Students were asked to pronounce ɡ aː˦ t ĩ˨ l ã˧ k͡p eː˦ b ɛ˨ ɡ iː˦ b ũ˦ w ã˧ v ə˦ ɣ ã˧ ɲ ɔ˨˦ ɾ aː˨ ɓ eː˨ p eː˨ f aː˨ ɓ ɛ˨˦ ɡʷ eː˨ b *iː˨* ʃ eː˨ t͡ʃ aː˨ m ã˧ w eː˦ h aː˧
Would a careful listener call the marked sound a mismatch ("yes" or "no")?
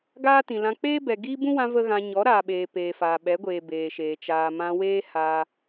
yes